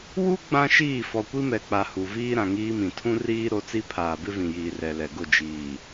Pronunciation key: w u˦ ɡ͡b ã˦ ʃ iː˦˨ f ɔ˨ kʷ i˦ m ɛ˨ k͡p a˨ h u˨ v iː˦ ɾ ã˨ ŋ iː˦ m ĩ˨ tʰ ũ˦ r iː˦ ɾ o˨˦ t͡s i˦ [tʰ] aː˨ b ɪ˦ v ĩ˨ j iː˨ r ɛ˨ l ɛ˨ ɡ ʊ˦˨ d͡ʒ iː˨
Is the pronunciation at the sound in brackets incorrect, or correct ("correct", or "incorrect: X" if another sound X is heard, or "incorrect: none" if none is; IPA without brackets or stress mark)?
incorrect: pʰ